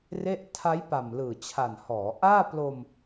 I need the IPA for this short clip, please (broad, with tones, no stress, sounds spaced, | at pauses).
r e˥˩ ʔ tʰ a˦˥ j p a˨˩ m l ɯː˨˩ t͡ɕʰ a˨˩ n h ɔː˩˦ ʔ aː˥˩ p l o˧ m